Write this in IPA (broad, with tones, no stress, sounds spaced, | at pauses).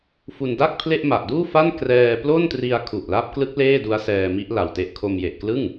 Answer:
f u˧ n d a˥˩ k̚ pʰ l e˥˩ ʔ m a˨˩ ʔ d uː˥˩ f a˥˩ n k r ɛː˧ p l o˥˩ n t r i˧ a̯ kʰ u˨˩ ʔ l a˦˥ p̚ k l ɯ˦˥ k̚ l eː˥˩ d u˦˥ a̯ s ɛː˧ m i˦˥ ʔ l a˨˩ w t e˦˥ ʔ kʰ o˧ m j e˨˩ ʔ k l ɯ˥˩ ŋ